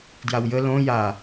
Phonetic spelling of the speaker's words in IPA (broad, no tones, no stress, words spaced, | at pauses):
djawjə lõ ja